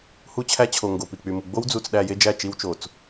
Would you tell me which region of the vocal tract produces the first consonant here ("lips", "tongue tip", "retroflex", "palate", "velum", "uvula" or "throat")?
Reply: throat